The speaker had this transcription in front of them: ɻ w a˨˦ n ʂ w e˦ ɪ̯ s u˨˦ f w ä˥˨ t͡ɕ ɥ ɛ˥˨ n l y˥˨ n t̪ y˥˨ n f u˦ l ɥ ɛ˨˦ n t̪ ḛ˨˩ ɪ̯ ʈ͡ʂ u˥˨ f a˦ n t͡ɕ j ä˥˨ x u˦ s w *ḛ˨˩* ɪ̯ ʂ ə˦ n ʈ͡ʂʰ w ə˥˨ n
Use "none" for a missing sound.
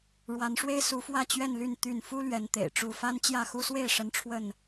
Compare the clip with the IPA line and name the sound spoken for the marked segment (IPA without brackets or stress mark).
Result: e˥˨